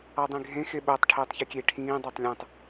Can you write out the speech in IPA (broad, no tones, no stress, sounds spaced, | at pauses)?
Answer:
ɑ dˤ ĩ ɡʱ ẽ x e ɓ o tˤ ʈʰ iː tˤ ç e kʲ e ʈʰ ĩː dˤ ɑ tˤ lʲ ẽ tˤ